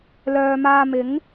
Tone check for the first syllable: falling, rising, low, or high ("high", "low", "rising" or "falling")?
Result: low